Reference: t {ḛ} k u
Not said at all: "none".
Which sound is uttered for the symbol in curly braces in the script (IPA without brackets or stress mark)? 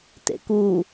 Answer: ḛ